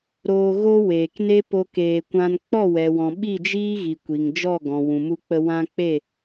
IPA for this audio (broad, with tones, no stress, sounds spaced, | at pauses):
ɾ oː˧ ɣ o˦ w eː˨ k n e˦ p o˦ k eː˧ kʷ ã˦ n k͡p ɔ˦˨ w ɛ˨ w ɔ̃˨ ɓ i˦˨ d͡ʒ iː˦ ɣ i˨ kʷ i˨ ŋ d͡ʒ ɔ˦˨ ɡ ɔ̃˨ w ũ˨ m u˧ k͡p ə˧ w ã˧ k͡p e˦˨